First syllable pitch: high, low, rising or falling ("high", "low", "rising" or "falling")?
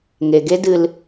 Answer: low